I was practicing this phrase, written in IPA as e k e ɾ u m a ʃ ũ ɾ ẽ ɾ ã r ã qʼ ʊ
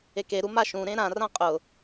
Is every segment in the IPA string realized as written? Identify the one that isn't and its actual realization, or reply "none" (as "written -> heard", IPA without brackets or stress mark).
none